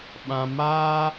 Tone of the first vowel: low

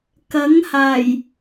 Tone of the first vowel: rising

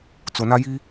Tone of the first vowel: low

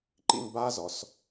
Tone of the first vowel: falling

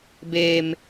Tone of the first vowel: low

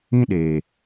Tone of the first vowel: high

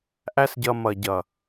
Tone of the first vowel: high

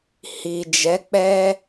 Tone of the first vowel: low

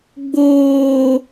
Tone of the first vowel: low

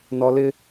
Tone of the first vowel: low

